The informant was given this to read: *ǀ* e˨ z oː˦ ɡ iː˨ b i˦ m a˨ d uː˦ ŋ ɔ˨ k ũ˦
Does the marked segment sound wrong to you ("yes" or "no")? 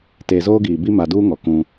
yes